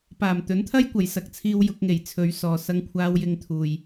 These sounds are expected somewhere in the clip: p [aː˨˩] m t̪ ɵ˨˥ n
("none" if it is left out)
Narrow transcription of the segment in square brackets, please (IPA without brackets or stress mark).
aː˨˩